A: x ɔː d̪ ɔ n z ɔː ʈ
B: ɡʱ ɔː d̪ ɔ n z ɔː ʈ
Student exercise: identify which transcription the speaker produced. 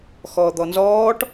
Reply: A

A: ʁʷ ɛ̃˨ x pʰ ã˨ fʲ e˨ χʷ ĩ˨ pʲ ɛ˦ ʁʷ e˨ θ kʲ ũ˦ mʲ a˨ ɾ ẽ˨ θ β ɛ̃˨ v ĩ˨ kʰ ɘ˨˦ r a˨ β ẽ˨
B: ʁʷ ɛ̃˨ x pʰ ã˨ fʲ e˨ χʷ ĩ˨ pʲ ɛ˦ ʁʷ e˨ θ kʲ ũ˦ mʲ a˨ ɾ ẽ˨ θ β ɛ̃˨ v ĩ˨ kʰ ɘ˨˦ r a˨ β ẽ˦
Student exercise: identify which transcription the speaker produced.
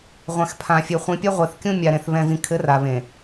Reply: A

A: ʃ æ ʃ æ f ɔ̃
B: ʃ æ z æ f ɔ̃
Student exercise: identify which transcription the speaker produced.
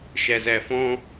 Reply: B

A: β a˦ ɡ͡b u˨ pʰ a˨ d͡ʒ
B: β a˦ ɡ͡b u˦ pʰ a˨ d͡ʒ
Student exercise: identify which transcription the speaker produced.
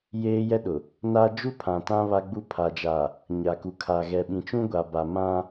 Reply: B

